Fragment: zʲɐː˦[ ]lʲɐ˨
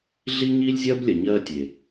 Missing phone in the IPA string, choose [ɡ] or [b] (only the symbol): b